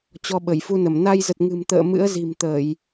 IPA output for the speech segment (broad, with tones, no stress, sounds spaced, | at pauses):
t͡ɕ ɔ˧ ɓ ə˧˩ j f u˧ n ə˧˩ m n a˧ j z ə˨˩ t̚ ŋ ɨ̤˨˩ m t̪ ə̰ː˧˨ m ɨ̰˧˥ ə̯ z i̤˨˩ m t̪ əː˧˩˨ j